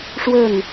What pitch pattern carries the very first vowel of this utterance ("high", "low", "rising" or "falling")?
falling